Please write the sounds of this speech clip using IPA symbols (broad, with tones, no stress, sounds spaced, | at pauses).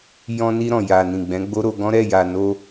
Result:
j ɔ̃˧ n i˧ ɾ ɔ̃˨ j a˨ n ĩ˨ ɡ͡b ɛ̃˨˦ ɡ͡b o˦ ɾ o˧ ɡ ɔ̃˦ ɾ ɛ˦˨ j a˨ n o˧